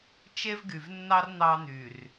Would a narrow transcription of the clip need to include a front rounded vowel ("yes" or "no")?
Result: yes